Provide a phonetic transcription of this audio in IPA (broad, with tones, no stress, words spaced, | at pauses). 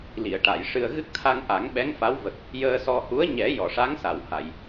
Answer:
li˨˩˨ə̯ʈa˨˩˨jʂɨ˧ə̯ ɣɨ˦˥k̚t̪ʰa˧ŋʔa˨˩˦ŋ ɓɛ˧˥ŋfa˧˥wvə˨˩k̚ | jəː˧ sɔ˧ hu˧˥ə̯ɲɛ˨˩˦ jɔ˨˩˨ʂa˧˥ŋsa˨˩˨wha˨˩˨j